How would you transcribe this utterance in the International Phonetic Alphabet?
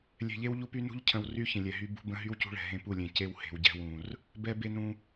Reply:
lʲ ɛ̤˨ ʎ e˦ w ʎ u˦ p y˦ n ṳ˦ ʎ cʰ ə̃˨ w r y˦ ç ə̃˨ lʲ ɛ˨ ɦ y˦ b ṳ˦ b ə̃˦ ɦ y˦ w c ṳ˦ ɭ ɛ̤˨ ɦ ẽ˦ p u˦˨ lʲ ẽ˨ c e˦ w h e̤˨ w ɟ ɛ̤˦ w ũ˨ r | b ɛ˦ b e˦ n ũ˦

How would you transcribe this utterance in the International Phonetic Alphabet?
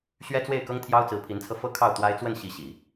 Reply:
ɕ ɥ ɛ˥ t͡s w e˥˩ ɪ̯ k ɤ˥ ŋ t̪ʰ j ɑ˥ ʊ̯ t͡s ɹ̩˧˥ pʰ i˧˥ n t͡sʰ ɤ˧ f ɤ˥˧ kʰ ɑ˥˩ ʊ̯ t̪ w a˥ ɪ̯ t͡s w ə˥˩ n ɕ i˧˥ ɕ i˨˩˦

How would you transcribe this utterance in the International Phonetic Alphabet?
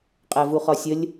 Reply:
qʼ æ v u χ ɒ sʲ ə lʲ

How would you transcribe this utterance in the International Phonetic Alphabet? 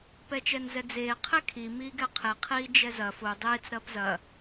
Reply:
p ɛ t͡ʃ ɛ n z ɛ d͡z eː qʰ e kʰ i m iː ɡ ɛ qʰ e qʰ iː d͡ʒ ɛ z ɐ f o dˤ eː t͡s ɾ ɐː p z ɐ

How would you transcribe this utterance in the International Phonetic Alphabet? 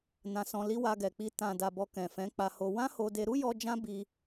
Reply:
n ã˧ s ɔ̃˧ l i˦ w a˧ ɡ ɛ˨ k͡p i˧ t ã˨ d a˨ b ɔ˨ k ɛ̃˨ f ɛ̃˨˦ k͡p a˧ h o˧ w ã˦ h o˧ d e˧ ɾ u˦ j ɔ˧ d͡ʒ ã˦ b i˧

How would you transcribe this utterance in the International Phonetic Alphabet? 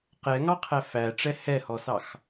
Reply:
q ɛ ŋ ɑ qʰ æ f æ ʈ͡ʂ ɛ h ɛ h ɔ s ɑ x

